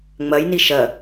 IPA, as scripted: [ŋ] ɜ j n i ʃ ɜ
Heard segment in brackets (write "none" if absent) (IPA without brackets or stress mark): ŋ͡m